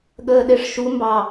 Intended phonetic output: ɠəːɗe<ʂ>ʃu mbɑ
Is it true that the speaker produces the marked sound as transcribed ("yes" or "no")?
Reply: yes